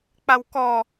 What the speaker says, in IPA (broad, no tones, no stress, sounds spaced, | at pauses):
k͡p a w k ɔ